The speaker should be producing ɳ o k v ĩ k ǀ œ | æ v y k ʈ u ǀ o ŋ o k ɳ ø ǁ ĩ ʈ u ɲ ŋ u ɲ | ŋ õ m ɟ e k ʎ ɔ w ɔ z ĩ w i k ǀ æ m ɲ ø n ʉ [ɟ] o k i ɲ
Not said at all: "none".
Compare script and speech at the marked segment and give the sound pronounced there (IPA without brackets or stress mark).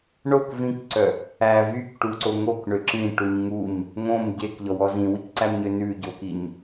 ɟ